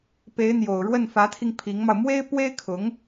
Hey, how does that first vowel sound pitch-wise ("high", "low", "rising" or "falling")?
rising